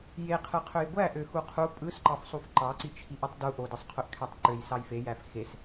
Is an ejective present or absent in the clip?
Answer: present